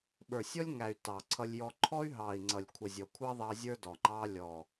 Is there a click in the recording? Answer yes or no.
yes